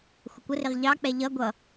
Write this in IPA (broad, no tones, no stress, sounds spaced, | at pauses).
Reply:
xʷ ə kʷ ə r ɪ ʁ ʎ ɑ k͡p ɛ ʎ ʌ ɡʷ ʌ